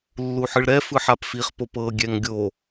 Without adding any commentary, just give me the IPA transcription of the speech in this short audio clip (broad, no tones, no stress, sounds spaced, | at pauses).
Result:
lː u ħ ɯ ɭ ɾ ɛ f ɯ ħ a p f i χ p o p ɤ ɡʲ ɛ ŋ ɡʲ o